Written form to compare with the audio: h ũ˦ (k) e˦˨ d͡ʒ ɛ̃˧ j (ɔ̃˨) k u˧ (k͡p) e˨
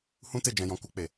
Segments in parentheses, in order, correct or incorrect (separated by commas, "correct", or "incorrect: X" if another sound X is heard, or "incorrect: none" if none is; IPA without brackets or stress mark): incorrect: t, incorrect: ɔ̃˧, correct